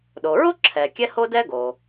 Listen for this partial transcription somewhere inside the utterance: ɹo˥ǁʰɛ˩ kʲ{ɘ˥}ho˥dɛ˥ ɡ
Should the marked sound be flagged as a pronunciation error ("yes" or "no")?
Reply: yes